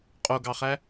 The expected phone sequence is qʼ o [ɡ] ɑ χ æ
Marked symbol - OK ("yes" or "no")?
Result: yes